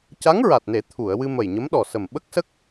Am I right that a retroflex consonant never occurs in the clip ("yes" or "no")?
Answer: yes